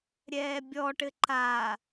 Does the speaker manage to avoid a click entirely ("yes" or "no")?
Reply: no